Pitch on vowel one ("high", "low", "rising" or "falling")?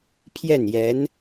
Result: falling